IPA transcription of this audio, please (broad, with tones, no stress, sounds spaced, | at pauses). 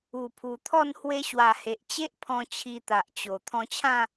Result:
u˨˩ pʰ u˨˩ t̪ʰ ɔ˥˧ n h w e˧ ɕ w a˨˩ h e˨ ʔ t͡ɕ e˦ ʔ pʰ ɔ̃˧ t͡ɕʰ i˧ t̪ a˨ ʔ t͡ɕ o˨˩ t̪ʰ ɔ̃˧ t͡ɕʰ ã˥˧